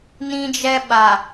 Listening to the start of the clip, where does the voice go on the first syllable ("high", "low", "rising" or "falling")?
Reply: high